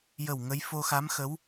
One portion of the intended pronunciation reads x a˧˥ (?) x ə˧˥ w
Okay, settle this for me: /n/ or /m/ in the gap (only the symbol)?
m